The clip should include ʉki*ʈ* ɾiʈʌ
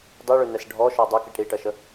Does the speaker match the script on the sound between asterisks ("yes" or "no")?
yes